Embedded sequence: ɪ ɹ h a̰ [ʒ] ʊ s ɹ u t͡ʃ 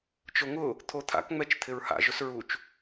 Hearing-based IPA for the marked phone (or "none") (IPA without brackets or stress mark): ʒ